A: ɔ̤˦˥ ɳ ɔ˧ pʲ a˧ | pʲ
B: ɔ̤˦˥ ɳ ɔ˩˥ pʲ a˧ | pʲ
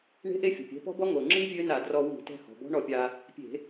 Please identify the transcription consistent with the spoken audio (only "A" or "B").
A